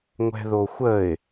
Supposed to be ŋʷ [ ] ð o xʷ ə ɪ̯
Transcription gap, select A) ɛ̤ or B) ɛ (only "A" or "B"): A